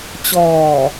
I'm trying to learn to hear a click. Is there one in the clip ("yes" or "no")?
no